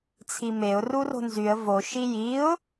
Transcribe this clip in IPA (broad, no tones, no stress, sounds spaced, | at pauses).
t͡sʰ i m e ʊ̯ r u r o̤ n z y ə̯ v o ʃ i j i ʊ̯